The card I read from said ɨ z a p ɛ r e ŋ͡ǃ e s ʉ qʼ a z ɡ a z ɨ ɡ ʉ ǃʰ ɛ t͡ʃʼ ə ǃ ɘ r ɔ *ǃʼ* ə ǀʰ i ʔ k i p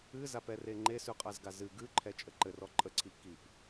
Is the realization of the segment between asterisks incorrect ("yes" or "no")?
no